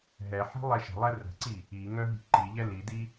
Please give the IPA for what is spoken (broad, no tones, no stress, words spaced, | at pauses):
ɦɛħi̤ lˠɛʃə̤lˠɛ rə̤ǀi | iŋœ ɦi̤ǃiʎɛ lidi